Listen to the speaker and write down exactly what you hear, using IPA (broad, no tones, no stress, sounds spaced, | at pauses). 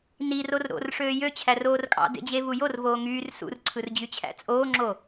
n i r o r ɾ o̰ r ʂ øː j ø t͡ɕʰ æ r oː r kʼ ɑ̰ d ḛ d͡ʑ e v u j o r v oː ŋ yː r s ṵ r ǀʰ ɯ r d͡ʑ y t͡ɕʰ æ̰ t͡sʼ oː ŋ͡ǁ o